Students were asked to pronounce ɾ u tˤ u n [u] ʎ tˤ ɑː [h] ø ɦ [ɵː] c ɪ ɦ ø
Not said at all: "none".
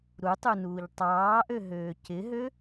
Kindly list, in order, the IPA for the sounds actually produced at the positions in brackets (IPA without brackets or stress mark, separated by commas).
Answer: uː, ʔ, øː